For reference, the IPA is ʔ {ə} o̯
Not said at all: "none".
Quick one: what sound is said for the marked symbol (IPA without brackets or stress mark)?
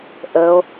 ə